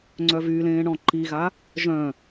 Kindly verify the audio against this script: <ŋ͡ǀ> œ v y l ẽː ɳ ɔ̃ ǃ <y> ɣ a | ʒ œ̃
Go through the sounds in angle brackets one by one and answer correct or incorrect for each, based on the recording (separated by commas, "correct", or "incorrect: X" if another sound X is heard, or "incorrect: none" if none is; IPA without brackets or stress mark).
correct, incorrect: i